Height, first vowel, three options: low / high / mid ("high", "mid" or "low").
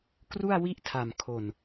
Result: high